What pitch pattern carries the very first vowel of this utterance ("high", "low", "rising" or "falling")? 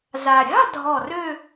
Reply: low